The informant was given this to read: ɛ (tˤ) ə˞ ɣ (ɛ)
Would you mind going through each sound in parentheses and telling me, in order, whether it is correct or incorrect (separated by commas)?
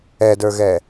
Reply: incorrect, correct